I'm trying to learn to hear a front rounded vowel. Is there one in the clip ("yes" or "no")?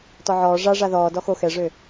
yes